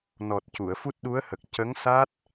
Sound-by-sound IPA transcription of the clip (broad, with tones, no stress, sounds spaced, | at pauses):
n ɔ˨˩ t̚ c u˨˩˨ ə̯ f u˦˥ t̚ ɗ u˧˥ ə̯ h ə˨˩ k̚ c ə˧˥ ŋ s a˦˥ t̚